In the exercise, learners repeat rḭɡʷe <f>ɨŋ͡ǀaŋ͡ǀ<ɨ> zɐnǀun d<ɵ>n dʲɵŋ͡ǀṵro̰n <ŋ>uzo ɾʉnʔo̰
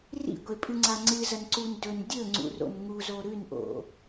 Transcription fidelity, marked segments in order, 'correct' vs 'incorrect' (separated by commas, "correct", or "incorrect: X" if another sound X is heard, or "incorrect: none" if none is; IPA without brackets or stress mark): incorrect: pʼ, correct, correct, correct